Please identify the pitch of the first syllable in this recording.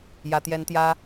high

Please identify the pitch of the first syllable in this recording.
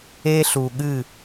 high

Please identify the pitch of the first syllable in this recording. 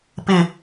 low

